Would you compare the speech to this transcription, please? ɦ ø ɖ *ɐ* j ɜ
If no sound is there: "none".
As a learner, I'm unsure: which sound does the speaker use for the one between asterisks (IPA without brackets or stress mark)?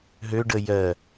ə